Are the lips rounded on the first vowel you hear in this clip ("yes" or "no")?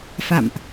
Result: no